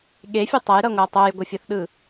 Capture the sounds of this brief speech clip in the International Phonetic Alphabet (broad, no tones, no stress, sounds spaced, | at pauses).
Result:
ɠ e fʲ e tˤ ʌ j ɾ ʌ ŋʷ a tˤ o j ɡʷ ʌ fʲ ʌ θ ɗ ɯ